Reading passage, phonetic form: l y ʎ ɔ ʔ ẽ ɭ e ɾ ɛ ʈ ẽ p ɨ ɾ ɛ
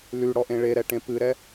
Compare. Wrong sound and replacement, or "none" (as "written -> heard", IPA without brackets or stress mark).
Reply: ʎ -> ɽ